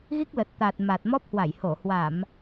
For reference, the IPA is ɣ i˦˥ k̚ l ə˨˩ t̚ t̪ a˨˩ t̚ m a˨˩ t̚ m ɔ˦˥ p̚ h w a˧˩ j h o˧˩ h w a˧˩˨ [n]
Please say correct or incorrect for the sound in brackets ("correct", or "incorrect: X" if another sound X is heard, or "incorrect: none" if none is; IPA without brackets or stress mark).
incorrect: m